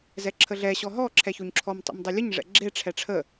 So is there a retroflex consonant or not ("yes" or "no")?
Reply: yes